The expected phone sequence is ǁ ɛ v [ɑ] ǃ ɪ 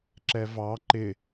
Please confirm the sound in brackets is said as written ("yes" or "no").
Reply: yes